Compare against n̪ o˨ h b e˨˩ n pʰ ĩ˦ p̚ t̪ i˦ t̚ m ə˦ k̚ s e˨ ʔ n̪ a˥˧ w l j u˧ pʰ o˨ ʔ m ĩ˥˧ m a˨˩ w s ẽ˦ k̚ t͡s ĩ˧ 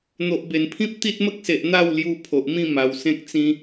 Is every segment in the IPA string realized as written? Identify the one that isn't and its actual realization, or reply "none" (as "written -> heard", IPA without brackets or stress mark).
h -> ʔ